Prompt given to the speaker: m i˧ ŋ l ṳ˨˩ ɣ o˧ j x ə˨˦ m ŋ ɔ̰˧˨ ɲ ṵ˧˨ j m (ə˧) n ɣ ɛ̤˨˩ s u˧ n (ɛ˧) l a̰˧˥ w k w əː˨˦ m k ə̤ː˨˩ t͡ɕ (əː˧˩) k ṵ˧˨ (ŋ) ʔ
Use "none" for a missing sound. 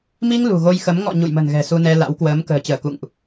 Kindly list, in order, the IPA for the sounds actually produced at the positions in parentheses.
ə̤˨˩, ɛ˧, əː˧˩, ŋ

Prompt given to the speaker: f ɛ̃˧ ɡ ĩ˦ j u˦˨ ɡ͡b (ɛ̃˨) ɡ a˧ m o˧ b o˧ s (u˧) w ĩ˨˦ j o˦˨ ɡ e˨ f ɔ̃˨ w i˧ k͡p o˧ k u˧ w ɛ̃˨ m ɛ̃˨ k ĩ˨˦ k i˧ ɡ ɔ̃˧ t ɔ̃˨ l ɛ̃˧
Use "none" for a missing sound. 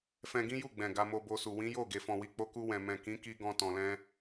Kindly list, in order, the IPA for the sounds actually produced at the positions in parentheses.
ɛ̃˨, u˨

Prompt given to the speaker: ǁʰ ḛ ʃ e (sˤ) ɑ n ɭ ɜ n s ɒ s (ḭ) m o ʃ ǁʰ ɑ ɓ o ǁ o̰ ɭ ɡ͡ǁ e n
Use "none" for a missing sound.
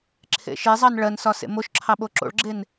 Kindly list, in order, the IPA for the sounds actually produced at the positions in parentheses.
zˤ, ḛ

